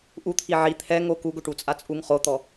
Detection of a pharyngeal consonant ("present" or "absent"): present